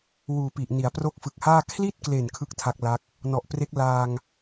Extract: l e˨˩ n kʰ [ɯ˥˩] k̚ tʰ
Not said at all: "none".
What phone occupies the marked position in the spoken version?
ɯ˥˩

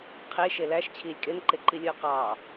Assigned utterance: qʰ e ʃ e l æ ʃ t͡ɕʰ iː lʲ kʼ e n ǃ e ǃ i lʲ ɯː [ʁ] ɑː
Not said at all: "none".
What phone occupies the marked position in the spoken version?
q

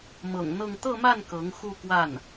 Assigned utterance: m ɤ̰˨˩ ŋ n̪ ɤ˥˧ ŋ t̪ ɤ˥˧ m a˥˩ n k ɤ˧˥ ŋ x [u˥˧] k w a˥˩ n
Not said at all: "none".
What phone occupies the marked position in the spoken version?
u˥˧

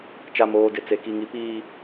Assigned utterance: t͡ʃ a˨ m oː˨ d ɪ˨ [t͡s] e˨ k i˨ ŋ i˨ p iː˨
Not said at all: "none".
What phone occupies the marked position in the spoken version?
t͡s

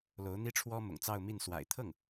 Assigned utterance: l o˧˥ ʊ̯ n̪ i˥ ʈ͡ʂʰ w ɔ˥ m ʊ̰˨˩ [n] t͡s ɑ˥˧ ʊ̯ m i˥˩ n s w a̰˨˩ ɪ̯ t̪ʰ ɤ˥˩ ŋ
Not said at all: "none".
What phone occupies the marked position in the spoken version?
ŋ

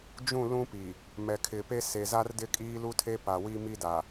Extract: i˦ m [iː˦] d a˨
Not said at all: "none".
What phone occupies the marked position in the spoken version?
i˦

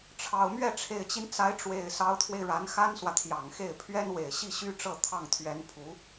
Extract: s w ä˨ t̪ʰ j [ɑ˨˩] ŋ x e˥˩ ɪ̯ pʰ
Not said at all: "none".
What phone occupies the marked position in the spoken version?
ɑ˨˩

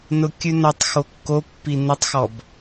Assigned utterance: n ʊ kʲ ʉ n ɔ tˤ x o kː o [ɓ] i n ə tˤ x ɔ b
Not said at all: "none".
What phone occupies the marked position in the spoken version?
pː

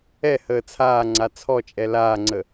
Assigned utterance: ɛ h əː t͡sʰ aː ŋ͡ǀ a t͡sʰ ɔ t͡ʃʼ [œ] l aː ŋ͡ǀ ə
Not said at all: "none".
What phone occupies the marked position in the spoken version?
ɛ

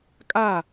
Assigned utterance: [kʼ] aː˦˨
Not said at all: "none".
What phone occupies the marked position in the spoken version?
kʼ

